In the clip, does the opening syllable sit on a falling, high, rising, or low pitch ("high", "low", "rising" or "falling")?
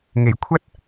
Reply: low